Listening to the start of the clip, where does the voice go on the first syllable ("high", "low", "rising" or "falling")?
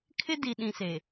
high